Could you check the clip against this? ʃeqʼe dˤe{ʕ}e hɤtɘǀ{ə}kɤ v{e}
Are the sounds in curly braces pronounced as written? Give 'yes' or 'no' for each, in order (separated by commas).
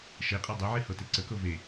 yes, yes, yes